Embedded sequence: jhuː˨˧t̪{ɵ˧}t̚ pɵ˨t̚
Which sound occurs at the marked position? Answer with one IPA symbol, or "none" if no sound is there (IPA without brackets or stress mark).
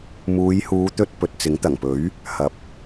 ɵ˧